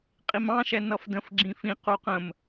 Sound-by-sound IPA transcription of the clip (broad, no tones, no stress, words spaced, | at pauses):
qʼimɑ̃ʃɛ nʌfdə̃f ɡ͡ǁĩfĩ quqə̃m